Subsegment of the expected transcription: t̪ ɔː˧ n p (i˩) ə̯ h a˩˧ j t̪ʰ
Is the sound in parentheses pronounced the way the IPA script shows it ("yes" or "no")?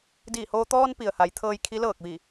yes